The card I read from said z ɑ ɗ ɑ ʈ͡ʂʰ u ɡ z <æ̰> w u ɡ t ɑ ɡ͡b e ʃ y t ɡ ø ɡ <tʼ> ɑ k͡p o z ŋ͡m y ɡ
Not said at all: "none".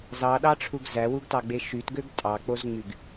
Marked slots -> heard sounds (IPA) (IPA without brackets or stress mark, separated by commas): æ, tʼ